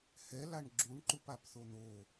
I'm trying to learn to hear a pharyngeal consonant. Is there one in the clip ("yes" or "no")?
no